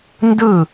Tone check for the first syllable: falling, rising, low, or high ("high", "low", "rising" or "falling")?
falling